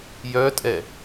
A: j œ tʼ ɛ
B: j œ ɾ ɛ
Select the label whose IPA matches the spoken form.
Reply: A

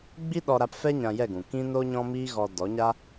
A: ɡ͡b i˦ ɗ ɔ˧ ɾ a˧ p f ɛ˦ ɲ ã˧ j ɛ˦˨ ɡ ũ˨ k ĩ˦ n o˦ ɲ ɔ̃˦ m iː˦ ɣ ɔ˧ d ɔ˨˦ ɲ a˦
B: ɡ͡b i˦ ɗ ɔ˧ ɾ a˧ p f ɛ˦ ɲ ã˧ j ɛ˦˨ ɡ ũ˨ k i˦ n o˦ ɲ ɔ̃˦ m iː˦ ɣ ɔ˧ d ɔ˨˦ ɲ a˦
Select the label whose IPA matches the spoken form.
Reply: A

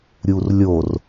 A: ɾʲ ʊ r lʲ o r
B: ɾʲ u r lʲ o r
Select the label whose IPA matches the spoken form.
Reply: B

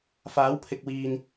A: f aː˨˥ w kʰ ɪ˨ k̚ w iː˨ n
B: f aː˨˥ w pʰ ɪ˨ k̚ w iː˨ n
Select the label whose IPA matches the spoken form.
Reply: B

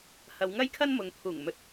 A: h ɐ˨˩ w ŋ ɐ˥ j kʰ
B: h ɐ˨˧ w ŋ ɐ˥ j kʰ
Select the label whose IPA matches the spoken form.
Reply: B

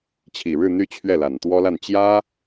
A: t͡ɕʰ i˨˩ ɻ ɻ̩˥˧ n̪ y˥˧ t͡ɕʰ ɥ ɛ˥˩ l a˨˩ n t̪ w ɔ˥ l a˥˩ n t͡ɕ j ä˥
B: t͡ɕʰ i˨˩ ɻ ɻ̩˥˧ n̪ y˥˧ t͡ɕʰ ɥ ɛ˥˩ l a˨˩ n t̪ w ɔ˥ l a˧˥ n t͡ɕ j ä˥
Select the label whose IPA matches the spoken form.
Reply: A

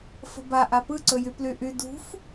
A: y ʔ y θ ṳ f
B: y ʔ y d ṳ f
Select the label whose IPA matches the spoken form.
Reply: B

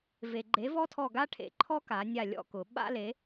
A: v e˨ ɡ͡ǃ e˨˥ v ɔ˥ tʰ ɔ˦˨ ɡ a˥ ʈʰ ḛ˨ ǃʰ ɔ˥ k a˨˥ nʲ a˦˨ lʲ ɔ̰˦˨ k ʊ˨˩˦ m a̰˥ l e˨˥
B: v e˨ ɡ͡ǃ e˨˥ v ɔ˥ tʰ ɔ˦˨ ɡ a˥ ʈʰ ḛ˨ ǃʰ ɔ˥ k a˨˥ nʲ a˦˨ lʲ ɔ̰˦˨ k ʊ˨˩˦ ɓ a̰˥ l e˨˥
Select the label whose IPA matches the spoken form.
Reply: B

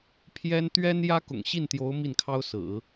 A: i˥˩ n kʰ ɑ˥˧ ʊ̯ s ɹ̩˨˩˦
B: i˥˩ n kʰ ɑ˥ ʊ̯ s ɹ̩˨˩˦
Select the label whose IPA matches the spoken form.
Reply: B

